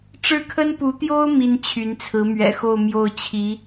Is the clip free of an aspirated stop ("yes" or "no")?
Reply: no